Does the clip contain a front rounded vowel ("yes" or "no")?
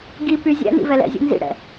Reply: yes